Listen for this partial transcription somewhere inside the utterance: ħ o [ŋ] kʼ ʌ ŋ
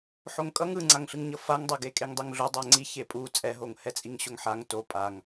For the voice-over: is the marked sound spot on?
yes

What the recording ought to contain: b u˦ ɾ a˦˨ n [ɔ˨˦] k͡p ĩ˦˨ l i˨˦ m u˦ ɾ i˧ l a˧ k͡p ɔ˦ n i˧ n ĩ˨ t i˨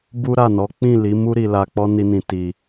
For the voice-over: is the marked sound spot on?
yes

